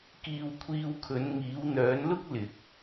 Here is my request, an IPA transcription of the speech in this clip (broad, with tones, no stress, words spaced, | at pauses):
kiː˧wkʷʰiː˧wkʰɵ˨˧n ŋiː˨˧wn̪œː˨˧nlʊ˥k̚ lɪ˧k̚